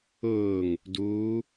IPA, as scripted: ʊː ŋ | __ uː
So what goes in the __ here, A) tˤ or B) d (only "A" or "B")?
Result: B